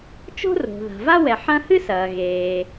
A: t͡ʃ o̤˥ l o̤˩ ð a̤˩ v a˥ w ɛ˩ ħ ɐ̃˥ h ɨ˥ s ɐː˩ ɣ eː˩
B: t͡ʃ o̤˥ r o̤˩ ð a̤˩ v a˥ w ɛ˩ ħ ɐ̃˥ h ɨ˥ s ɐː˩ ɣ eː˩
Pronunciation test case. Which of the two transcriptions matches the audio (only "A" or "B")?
B